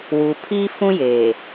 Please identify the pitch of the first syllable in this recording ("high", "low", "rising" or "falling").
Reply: low